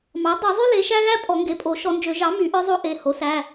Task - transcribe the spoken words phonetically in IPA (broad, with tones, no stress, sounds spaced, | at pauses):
m ɑ˩˥ dˤ œ˨˩˦ zˤ y˥ l e˩˥ ʃ æ˥ ɣ æ˥ pʼ ɔ˨˩˦ ŋ ɡ e˩˥ pʼ o˨˩˦ ʃ ɔ˨˩˦ n d͡ʒ ø˨˩˦ ʒ ɑ˩˥ m y˨˩˦ ʔ œ˥ zˤ o˥ ʔ e˩˧˩ h o˩˥ s æ˩˧˩